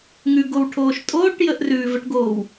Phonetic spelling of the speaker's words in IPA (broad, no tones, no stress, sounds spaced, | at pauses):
ŋ ʉ ɡ o w ʈʰ oː ʃ tʼ oː ʈ j ə ʔ r ʉː v ə ʈ ɡ oː w